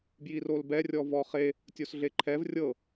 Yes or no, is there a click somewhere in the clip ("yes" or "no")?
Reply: yes